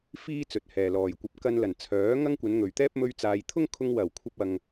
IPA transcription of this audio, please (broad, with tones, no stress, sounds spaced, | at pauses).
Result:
f iː˥ t͡s ɵ˨ t̚ h ɛː˨ l ɔː˨ j kʷ ɐ˧ p̚ k ɐ˧ n l ɐ˨˩ n t͡sʰ œː˨˥ ŋ ɐ˥ ŋ kʷ ɐ˨˧ n ŋ ɵ˨ ɥ t̪ ɛː˥ p̚ m ɵ˥ ɥ t͡s aː˧ j t̪ʰ ʊ˥ ŋ kʰ ʊ˧ ŋ w ɐ˨˩ w kʷʰ ɐ˧ p̚ ɐ˧ ŋ